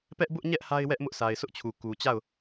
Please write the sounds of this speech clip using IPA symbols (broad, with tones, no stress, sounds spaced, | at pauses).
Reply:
p ɛ˦ ʔ b ʊ˦ ʔ ɲ ɛ˦ ʔ h a˦ ɪ̯ w ɛ˦ ʔ m ʊ˦ ʔ sʰ a˨ ɪ̯ s ʊ˦ ʔ t͡ɕʰ u˨ k u˨ t͡ɕ a˦˨ ʊ̯